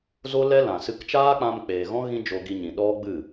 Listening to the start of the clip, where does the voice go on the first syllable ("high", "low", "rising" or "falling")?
high